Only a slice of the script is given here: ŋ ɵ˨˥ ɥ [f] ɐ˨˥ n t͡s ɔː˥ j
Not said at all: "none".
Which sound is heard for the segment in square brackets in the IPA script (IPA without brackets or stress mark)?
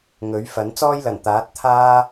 f